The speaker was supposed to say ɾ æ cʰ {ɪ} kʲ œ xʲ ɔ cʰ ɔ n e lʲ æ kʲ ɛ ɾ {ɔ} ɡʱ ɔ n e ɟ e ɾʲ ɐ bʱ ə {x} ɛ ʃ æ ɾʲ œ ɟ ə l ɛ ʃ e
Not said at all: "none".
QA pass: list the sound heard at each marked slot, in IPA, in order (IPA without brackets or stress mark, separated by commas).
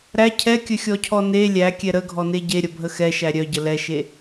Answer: ɛ, ə, x